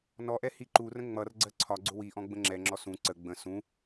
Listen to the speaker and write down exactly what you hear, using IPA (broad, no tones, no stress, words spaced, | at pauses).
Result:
nɔʔɛ hiǃurə̃ ŋ͡mʌrɡ͡ǀɜ ǀʰɒɡ͡ǀʊ wiʔɔ̃ ɡ͡bə̃ŋ͡ǁɛŋ͡ǁɔ sũ ǀə ɡ͡bə̃ sũ